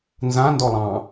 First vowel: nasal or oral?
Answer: nasal